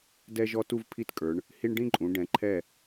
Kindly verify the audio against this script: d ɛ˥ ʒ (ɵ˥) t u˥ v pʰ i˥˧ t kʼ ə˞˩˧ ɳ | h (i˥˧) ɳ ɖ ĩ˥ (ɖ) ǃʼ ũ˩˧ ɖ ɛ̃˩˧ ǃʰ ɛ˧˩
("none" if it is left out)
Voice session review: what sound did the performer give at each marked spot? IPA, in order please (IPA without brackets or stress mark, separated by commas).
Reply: ɔ˥, i˥, none